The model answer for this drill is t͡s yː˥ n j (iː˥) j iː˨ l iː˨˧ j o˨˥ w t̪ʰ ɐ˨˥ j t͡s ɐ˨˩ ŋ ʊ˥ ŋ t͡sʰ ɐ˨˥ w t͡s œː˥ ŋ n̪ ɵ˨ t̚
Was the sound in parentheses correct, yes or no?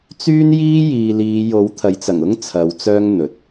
yes